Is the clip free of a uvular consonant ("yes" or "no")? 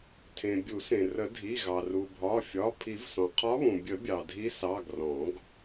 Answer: no